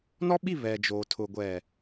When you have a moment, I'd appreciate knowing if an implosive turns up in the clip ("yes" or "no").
yes